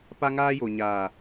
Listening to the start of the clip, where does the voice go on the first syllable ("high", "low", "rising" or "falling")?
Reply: high